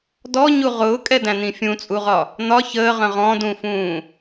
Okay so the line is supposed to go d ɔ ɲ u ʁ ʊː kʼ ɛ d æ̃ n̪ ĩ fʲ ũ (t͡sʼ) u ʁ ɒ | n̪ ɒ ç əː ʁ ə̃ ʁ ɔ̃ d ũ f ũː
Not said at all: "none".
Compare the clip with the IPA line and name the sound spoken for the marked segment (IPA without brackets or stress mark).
t͡sʼ